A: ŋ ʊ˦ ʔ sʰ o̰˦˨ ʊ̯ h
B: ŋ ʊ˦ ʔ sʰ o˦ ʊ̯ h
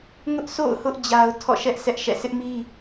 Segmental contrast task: A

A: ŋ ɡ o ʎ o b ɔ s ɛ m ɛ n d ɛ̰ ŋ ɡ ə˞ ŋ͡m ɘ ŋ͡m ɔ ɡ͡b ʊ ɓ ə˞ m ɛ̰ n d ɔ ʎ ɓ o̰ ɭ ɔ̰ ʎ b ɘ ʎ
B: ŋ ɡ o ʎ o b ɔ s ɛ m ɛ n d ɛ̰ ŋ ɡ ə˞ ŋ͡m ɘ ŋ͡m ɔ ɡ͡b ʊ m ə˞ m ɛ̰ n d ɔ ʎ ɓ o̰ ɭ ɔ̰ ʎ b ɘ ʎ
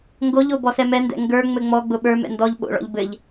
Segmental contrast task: A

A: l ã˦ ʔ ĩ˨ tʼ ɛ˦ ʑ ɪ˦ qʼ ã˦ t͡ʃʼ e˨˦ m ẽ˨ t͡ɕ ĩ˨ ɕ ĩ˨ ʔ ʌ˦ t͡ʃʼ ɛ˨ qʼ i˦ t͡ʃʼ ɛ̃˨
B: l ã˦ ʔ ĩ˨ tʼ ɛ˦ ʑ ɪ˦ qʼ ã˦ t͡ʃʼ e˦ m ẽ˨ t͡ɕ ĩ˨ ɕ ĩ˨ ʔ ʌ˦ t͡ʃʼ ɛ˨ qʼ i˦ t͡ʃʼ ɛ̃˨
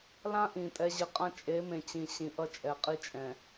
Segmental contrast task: A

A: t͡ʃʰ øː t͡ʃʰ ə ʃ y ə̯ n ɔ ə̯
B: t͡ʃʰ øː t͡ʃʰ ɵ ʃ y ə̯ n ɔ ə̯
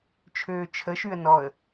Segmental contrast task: A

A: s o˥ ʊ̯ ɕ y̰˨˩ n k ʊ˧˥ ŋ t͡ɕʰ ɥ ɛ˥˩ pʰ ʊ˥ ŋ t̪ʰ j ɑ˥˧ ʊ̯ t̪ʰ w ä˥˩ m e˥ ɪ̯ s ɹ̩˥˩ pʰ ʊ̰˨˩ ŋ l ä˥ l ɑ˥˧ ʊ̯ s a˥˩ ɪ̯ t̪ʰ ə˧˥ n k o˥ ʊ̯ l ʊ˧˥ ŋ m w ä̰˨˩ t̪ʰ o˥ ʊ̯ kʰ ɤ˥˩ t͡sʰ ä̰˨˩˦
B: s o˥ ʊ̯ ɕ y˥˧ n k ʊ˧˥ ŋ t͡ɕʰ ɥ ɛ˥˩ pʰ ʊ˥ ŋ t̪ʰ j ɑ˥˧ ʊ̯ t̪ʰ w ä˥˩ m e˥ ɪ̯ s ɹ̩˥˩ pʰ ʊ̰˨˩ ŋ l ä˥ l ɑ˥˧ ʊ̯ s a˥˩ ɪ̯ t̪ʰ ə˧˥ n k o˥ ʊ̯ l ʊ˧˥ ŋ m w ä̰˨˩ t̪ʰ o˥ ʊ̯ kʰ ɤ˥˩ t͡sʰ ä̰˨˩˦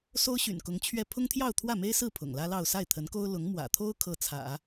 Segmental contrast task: A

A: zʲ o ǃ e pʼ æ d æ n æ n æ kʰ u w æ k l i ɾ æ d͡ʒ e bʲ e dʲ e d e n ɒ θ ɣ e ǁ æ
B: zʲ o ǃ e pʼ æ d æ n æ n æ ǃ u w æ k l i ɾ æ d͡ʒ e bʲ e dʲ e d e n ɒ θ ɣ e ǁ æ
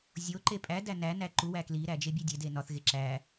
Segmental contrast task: B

